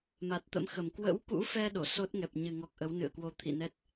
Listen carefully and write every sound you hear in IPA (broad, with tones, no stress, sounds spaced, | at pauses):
m a˨˩ t̚ t̪ ə̰˧˥ m x ə˨˩ m k w ə̰˧˥ w k ṵ˧˥ f ɛ˧ ɗ o˧˩ s o˦˥ t̚ ŋ ɛ˨˩ p̚ ɲ ɨ˨˩ ŋ ɔ˨˩ k̚ ʔ ə˨˦ w n ɨ̰˧˨ ə̯ k w o˧ t̪ʰ ḭ˧˨ n ɛ˦˥ t̚